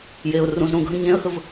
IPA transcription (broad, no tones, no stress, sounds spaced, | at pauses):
j e ʊ̯ r ũ z ɾ ũ ɡʱ ə̃ ɲ ẽ ə̯ x ə v